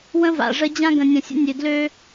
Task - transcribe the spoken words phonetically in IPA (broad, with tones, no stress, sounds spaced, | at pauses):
w ə̃˦ v a̰˨ ʐ ə˦ d͡ʑ ã˦ ɡ ə̃˨ nʲ ə̃˨ sʲ ə̰˦ nʲ ø˨ d l ø˦